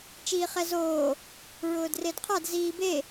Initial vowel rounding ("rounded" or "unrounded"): unrounded